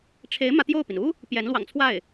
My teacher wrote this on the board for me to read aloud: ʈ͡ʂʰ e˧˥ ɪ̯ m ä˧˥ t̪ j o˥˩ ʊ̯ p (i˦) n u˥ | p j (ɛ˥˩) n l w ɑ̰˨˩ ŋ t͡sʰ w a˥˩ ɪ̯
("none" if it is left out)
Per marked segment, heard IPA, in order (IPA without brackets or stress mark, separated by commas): i˩, ɛ˧˥